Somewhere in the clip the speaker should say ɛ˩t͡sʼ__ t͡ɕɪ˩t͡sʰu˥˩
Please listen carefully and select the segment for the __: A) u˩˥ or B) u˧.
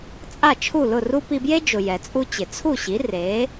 B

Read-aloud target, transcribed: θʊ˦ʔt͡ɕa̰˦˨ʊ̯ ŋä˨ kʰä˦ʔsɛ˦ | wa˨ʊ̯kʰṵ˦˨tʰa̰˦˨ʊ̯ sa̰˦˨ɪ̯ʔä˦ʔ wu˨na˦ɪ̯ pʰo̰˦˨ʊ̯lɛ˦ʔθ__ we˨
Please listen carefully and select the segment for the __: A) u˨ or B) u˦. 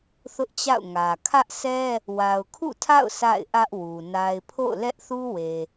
B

